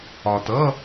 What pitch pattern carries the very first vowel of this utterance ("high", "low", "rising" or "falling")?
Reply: low